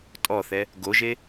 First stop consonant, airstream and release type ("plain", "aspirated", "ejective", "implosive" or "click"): ejective